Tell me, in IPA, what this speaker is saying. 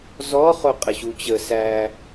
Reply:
zɔχo qʼəɕut͡ɕə sæ

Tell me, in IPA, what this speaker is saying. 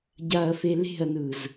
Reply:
ɟaɐ̯fele̤ɐ̯nɯz

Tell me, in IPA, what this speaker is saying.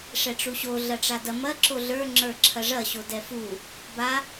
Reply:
ʂɛʈ͡ʂuɕo ɮɐʈ͡ʂadɐ mɐ ǁoɮə˞ ŋ͡ǁə˞ǁʰɐʐɐ ɕodɛfu | ba

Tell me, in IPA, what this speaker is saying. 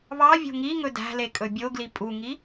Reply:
βɑ vʲo̤ŋiŋɵ dæ̤le kʼɵbʲoɡli pʼuŋi

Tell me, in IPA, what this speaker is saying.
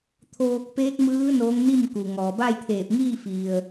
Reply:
t̪ʰoː˧k̚ peː˧˥k̚mɯː˧˥ noː˧˥ŋni˥˨mku˩ ŋɔː˩ba˥˨jt̪ʰeː˧˩p̚ŋiː˥˨ fi˩ə̯

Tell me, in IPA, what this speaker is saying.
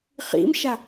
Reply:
χḭmʃa

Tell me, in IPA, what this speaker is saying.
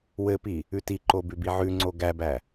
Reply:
wɘpi | ʉtiǃo bʉbiʕʉŋ͡ǀo ɡæbæ

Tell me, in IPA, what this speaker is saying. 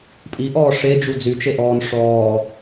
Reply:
pʼiʔɔː ʂed͡ʒu d͡zyt͡ʃeʔɔːn ʂɔː

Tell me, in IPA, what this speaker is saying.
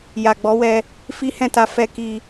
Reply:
ja˨ɡ͡bɔ˨˦wɛ˧ | fi˦hɛ̃˦˨ta˧ fɛ˧ki˧

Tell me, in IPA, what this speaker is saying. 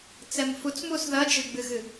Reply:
t͡sɛmfut͡smus ðɐd͡ʒɨɡ͡bɨɣɨ

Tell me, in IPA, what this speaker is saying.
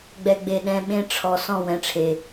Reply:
ɡ͡bɛ˨ɡ͡be˨ɗɛ̃˨ ɓẽ˦ ʈ͡ʂʰɔ˨ sɔ̃˦˨wɛ̃˨ʈ͡ʂʰe˨

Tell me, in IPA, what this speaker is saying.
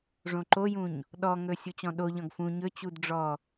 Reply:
ʐõǃojũɲ | ɗɔŋɵ sʲut͡ɕɔ̃ɗoʎɔ̃ɡ fũ ɲɵt͡ɕud ɖ͡ʐɔ

